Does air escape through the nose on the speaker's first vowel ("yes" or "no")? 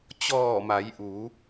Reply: no